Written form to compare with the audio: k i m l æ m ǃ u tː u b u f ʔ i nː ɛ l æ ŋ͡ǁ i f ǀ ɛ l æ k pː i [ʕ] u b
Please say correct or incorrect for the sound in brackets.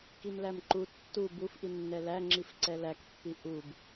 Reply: incorrect